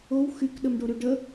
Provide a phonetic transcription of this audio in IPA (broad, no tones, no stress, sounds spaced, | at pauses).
o w x y k ɗ ə m ɖ o ɾ y ɖ ə